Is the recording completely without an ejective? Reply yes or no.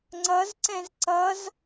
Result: yes